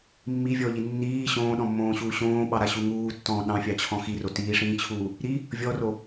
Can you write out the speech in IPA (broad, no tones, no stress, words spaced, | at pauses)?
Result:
mːivʲɔʎi nːiː ɕõːɗɔ̃mːõːɕuː ɕõːɓɑɾaɕu ŋuːtːɔ̃ː ɗɑ̃fʲɑt͡ɕʰɔ̃ xiro tiːʂĩːt͡ɕʰuː | ɾi | vʲɔro